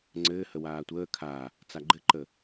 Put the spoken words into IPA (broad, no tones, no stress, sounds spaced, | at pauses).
ŋ͡ǀ ɘː h ə w aː tʷ əː kʰ a | t͡s a ɡ͡ǃ ɘ ǃ ə